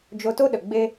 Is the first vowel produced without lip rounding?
no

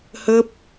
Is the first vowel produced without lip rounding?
yes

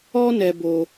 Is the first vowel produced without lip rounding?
no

